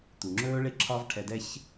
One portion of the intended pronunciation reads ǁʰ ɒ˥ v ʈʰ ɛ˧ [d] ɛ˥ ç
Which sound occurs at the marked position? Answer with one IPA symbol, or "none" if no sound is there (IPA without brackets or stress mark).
d